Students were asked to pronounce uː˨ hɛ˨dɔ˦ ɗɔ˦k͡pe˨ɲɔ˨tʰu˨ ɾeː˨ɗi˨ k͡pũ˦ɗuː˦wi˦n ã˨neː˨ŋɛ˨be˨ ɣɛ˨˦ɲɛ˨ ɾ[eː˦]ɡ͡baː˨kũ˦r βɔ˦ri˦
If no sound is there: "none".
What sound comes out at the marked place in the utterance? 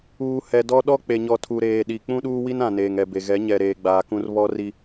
eː˨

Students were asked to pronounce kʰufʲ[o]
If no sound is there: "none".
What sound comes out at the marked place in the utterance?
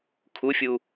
u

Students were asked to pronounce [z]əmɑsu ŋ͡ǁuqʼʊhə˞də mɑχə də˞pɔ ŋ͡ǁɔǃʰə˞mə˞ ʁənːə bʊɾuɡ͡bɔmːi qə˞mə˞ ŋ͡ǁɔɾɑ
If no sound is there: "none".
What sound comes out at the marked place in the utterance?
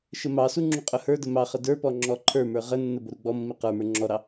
ʃ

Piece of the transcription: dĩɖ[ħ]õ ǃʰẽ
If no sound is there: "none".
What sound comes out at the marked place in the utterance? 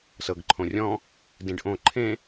ʔ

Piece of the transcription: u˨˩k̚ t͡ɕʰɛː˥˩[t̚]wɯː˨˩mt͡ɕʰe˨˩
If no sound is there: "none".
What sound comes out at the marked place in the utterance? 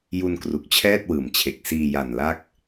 t̚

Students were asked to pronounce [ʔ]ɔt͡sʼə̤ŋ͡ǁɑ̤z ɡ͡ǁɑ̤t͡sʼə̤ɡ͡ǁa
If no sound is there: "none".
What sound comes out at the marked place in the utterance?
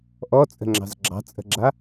ʔ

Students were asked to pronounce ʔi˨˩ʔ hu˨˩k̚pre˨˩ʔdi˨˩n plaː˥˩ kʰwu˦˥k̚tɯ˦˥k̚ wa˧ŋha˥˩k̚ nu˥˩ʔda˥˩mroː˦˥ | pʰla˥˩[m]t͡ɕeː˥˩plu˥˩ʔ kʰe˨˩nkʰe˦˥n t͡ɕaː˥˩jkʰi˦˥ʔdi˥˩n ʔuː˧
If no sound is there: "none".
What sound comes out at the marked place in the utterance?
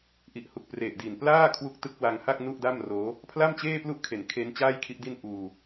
m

